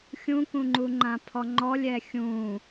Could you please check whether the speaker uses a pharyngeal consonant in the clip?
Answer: no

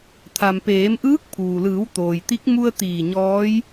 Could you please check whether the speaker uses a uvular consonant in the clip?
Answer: no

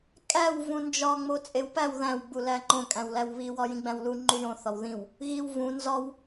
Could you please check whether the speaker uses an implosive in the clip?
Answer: no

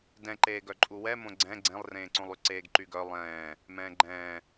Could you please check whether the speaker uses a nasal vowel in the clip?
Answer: yes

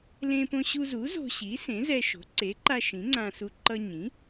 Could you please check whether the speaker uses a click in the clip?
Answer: yes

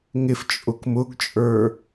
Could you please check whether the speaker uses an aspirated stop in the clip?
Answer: no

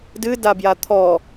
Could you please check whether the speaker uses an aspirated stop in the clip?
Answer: yes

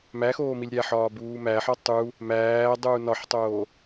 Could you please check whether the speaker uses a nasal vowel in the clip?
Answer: no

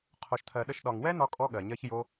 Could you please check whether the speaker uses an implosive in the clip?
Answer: yes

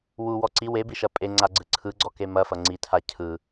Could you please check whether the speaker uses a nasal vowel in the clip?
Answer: no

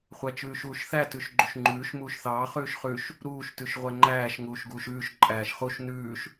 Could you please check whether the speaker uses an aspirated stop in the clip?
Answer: no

